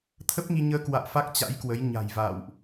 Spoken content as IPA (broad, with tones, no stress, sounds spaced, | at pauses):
t̪ʰ ə˦˥ p̚ ŋ i˧ ɲ əː˧ k w a̰ː˧˨ f a˦˥ k̚ t͡ɕ a̰˧˥ j k w ə˨˦ j ɲ a̤˨˩ j v a̰ː˧˨ w ʔ